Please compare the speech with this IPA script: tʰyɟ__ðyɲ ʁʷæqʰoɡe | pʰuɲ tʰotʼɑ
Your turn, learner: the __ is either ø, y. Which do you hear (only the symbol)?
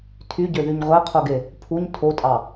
ø